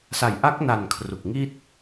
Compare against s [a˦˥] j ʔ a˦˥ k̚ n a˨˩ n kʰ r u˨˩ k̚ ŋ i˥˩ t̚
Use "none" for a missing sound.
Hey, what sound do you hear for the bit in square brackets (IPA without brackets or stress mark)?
a˩˦